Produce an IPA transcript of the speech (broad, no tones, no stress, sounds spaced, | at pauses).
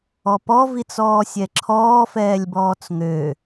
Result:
ɔ p ɔ v i t͡s ɔː sʲ ɛ ǁʰ ɔː f ɛː lʲ b ɔː t͡s ŋ ø